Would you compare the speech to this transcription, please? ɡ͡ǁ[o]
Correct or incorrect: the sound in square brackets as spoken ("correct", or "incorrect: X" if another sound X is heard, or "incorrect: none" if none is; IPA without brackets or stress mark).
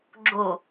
correct